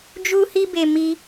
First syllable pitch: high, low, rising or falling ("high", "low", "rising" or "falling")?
high